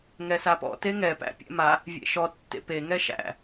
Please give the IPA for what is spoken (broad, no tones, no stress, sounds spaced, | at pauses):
ŋ ɛ s a p ɔ̰ t e ŋ ɛ p æ̰ pʲ ɛ̰ m a | vʲ ḛ ʃ ɔ tː ḛ p e ŋ ɛ ʃ æ̰